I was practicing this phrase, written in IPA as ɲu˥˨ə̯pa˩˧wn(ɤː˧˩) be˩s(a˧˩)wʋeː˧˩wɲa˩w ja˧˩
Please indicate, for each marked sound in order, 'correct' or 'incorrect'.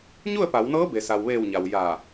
incorrect: ɤː˧˥, incorrect: a˩

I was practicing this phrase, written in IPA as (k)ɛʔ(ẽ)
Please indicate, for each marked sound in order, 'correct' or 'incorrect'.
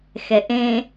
incorrect: x, correct

